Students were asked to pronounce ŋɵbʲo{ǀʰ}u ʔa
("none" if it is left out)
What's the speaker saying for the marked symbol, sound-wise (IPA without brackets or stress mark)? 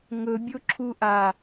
ǁʰ